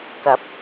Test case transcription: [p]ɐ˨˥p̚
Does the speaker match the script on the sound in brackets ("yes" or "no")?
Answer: no